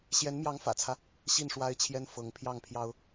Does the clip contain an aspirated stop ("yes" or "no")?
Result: yes